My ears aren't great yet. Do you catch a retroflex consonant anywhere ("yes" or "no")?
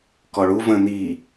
yes